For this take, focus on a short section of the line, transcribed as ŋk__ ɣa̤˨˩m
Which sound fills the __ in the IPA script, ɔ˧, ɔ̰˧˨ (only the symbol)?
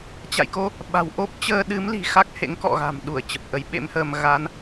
ɔ̰˧˨